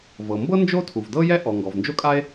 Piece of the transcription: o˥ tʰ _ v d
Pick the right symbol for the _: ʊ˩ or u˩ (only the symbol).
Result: u˩